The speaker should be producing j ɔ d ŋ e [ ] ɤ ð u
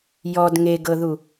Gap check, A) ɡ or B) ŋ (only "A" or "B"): A